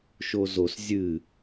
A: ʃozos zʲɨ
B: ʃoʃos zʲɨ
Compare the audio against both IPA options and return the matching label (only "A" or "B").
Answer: A